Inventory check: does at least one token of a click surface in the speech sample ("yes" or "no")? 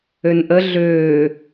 no